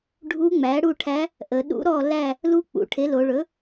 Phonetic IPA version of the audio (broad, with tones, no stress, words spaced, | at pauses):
ɖʱu˧˥ŋ͡mæ˩˥ɽu˦˨ʈʰæ˧˥ | ʔə˩˧ɗṵ˧˥ɾɔ˦˨ læ˦˨ | lu˧˥ k͡pṵ˩˧ʈʰe˩˥lo˩˧ɭɵ˩˥